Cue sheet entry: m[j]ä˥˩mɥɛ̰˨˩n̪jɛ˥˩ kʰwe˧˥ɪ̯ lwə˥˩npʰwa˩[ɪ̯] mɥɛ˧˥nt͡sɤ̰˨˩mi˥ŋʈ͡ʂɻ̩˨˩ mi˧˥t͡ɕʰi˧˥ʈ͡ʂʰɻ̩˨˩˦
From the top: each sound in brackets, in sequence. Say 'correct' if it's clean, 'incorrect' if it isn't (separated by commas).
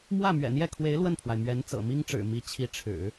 incorrect, correct